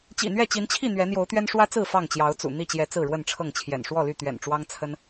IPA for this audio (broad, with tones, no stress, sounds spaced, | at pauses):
t͡ɕ ḭ˨˩ n̪ ɥ ɛ˥˨ t͡ɕ i˨˦ n t͡ɕʰ i˥˨ n̪ ɥ ɛ˨˦ n̪ j o˨˦ ʊ̯ t̪ ɥ ɛ˦ n ʂ w ä˦ t͡s ɹ̩˥˨ f ɑ˥˨ ŋ t͡ɕ j ɑ˨˦ ʊ̯ t͡s ṵ˨˩ n̪ i˥˨ t͡ɕ j ɛ˨˦ t͡s ɹ̩˥˨ ɻ w ə˥˨ n ʈ͡ʂʰ ɤ˥˨ ŋ t͡ɕʰ j ɛ̰˨˩ n ʂ w ɔ˥˨ l y˥˨ t̪ ɥ ɛ̰˨˩ n ʈ͡ʂ w ɑ˦ ŋ t͡sʰ ə˦ n